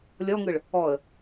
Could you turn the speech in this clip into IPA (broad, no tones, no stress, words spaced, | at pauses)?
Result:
lʲɔŋɯɭ | ɔə̯